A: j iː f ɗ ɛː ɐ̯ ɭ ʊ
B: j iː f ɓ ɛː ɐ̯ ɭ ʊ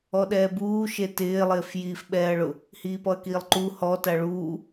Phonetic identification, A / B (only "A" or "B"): B